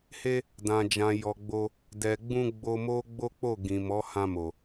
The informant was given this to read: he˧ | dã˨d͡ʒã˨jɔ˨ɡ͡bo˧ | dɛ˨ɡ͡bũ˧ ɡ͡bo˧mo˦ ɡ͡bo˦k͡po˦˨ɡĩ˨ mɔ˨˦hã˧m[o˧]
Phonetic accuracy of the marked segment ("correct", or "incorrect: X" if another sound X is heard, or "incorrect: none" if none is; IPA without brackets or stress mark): incorrect: o˨